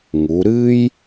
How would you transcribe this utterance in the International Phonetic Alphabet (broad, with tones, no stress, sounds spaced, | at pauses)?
ŋ u˩˧ ɾ ɨ˥ j